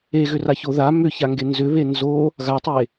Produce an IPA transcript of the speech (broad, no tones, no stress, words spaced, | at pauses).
eɣʏraço ða mʏçaŋɡe nzʏβe nzo | ɣatˤe